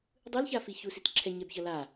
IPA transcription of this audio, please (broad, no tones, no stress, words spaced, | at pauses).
dˤɯlçafiçu sitǁʰɛ ɲɛbçʌla